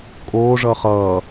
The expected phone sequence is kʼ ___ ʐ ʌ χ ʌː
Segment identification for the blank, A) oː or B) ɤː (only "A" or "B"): A